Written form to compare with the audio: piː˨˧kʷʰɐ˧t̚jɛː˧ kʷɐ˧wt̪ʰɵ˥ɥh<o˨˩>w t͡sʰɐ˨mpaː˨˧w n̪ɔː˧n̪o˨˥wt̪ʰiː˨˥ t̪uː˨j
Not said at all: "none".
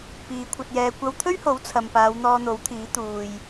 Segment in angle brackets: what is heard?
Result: o˨˥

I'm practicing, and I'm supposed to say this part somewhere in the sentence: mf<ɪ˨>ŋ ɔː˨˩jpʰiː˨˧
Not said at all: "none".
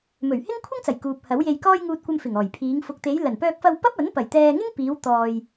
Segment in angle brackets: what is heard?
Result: ɪ˨˩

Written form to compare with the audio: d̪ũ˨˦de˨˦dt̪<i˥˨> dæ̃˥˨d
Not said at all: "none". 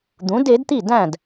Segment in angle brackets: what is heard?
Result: i˥˨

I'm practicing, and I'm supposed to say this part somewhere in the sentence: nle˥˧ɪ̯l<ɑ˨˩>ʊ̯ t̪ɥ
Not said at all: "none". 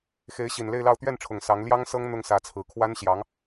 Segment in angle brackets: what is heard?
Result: ɑ˥˧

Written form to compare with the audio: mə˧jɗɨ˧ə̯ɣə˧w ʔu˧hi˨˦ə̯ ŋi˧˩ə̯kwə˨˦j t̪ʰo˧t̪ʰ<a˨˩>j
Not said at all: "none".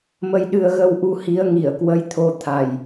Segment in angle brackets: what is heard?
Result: a˨˩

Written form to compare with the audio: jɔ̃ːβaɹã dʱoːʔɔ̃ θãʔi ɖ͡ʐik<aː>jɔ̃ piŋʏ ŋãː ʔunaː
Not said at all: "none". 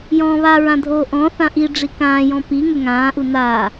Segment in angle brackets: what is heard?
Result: ãː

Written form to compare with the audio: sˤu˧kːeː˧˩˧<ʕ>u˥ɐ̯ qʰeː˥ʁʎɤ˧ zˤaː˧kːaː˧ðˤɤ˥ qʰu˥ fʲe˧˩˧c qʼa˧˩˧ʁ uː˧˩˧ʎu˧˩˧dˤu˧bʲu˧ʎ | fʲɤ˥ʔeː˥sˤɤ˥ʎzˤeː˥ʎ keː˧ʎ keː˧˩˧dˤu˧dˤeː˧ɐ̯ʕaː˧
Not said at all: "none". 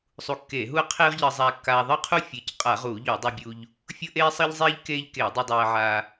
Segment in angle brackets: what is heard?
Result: ɦ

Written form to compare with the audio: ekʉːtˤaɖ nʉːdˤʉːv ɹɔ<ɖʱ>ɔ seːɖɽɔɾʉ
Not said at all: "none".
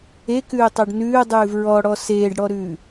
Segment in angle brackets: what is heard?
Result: ɽ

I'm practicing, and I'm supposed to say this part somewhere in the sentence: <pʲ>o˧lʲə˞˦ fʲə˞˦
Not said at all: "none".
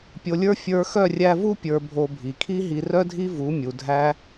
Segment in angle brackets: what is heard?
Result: pʲ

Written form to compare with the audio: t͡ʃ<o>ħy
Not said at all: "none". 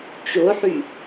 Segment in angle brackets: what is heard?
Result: o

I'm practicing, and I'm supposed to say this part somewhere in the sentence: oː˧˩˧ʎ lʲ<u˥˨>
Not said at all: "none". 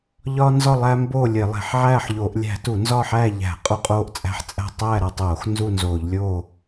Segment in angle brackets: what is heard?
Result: o˥˨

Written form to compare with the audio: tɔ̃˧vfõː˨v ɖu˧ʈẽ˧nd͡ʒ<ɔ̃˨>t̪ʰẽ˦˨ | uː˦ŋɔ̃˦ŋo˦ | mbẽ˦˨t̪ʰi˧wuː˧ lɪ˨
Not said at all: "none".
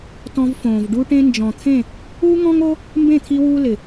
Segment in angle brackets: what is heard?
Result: ɔ̃˨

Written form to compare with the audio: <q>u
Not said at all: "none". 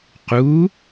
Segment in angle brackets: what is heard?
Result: q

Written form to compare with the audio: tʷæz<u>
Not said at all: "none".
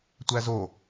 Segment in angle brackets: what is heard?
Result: o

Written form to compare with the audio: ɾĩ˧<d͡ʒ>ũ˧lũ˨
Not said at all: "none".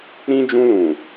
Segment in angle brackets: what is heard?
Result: d͡ʒ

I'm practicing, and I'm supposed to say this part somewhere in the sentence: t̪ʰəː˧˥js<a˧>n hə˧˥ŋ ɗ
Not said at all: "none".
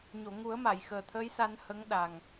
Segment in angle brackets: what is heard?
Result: a˧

